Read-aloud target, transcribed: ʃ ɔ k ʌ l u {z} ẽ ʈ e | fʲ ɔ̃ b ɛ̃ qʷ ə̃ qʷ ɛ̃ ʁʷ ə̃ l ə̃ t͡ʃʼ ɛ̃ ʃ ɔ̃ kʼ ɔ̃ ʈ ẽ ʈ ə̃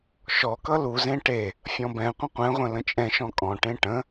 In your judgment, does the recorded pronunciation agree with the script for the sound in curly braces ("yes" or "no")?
yes